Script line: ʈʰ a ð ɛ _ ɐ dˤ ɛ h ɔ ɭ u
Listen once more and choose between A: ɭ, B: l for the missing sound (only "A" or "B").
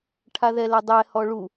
B